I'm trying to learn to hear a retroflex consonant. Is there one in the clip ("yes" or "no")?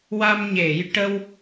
yes